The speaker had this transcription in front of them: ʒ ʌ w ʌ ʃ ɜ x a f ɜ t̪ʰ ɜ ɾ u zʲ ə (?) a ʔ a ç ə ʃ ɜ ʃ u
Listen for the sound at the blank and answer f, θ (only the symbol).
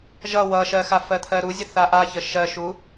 θ